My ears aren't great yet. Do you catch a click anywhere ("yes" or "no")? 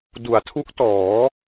no